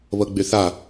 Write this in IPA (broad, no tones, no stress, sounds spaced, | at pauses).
β ɤ ɡ͡b y θ a